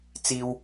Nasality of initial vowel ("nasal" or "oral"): oral